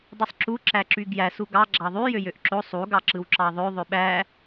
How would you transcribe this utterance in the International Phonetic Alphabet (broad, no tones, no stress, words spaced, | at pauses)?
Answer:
dˤisˤǁu ǁæǁyɡjæs uɡɑ ɡ͡ǁɑðˤy jøjøʔǁo sˤu ɡɑǁɯwǁɑðˤø ðˤøɓæ